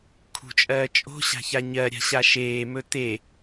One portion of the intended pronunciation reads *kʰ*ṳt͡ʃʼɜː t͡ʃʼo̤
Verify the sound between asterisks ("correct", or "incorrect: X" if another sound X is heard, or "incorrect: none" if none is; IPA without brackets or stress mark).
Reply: correct